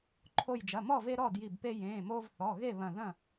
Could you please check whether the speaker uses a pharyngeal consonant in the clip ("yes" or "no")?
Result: no